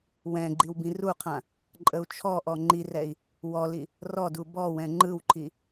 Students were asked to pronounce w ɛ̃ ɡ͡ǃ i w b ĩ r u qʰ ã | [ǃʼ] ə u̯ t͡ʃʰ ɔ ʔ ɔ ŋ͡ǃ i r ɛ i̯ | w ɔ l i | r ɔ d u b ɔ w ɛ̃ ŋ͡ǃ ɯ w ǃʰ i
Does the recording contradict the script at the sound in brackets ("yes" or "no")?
no